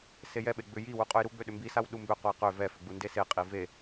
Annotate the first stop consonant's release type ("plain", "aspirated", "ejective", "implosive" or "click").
implosive